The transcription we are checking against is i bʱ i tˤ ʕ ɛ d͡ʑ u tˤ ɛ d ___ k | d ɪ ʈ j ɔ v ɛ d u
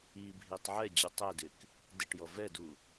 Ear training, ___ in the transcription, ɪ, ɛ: ɪ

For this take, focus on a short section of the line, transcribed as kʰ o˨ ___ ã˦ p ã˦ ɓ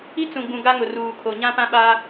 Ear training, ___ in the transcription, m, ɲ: ɲ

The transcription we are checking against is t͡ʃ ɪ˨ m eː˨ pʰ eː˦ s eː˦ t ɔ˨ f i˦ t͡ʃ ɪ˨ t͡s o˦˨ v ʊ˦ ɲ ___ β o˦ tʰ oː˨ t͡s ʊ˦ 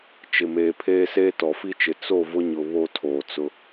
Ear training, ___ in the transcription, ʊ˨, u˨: ʊ˨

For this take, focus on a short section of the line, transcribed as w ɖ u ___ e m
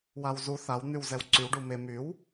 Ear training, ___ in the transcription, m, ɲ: m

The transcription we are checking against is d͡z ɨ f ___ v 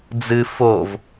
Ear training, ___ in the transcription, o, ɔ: o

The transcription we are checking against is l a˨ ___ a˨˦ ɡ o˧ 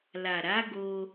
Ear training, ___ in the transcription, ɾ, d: ɾ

